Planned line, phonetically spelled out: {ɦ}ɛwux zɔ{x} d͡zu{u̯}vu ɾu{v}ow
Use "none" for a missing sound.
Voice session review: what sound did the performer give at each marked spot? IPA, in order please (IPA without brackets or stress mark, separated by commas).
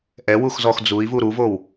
ʔ, x, i̯, v